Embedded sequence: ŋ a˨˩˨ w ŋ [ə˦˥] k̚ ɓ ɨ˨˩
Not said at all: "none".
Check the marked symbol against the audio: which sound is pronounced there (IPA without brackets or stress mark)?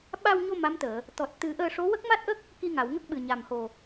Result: ə˦˥